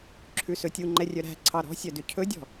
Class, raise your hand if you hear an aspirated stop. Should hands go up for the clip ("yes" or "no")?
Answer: yes